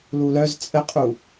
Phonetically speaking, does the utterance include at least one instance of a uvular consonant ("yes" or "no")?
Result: yes